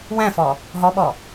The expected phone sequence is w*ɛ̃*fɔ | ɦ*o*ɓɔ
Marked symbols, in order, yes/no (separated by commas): yes, no